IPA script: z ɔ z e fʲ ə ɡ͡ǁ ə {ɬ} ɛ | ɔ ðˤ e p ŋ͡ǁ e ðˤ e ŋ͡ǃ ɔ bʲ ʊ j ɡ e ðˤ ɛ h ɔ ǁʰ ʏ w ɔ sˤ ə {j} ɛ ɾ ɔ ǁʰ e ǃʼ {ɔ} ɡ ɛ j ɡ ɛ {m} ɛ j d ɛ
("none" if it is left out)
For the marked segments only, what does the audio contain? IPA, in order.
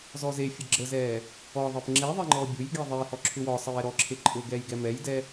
z, j, ʊ, m

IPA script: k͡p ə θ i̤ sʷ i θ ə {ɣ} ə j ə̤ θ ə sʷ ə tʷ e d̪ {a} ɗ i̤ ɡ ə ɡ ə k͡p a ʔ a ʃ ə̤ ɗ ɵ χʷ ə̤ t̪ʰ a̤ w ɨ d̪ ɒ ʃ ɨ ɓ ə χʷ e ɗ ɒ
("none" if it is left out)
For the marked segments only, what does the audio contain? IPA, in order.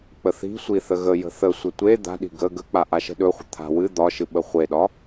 ɣ, a̤

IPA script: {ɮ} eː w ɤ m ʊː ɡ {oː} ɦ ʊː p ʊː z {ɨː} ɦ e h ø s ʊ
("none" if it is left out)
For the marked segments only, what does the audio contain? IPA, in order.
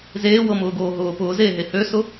z, oː, eː

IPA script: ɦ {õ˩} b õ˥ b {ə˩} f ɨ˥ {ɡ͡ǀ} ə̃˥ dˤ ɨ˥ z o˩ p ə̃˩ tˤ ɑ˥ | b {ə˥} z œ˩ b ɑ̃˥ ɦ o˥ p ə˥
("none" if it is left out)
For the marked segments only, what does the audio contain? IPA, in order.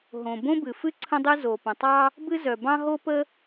õ˩, ɨ˩, ǀʰ, ɨ˥

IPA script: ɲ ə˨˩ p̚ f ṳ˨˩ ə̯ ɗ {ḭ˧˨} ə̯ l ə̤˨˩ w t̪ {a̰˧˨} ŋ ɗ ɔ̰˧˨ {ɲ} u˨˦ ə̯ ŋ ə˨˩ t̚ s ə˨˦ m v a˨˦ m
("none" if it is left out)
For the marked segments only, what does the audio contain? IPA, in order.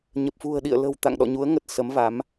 ḭ˧˨, a̰˧˨, ɲ

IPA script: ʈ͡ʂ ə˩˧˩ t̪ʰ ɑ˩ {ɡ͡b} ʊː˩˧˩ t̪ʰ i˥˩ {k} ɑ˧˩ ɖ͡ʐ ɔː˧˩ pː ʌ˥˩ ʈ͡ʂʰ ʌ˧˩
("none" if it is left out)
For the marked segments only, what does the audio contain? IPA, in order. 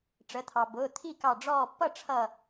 b, k

